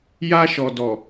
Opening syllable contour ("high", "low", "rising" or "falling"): high